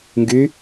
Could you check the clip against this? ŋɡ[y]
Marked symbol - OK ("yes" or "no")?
yes